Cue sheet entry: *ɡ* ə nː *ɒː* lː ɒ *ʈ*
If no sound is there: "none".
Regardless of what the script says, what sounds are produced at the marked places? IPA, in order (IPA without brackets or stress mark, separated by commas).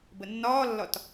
b, ɒː, t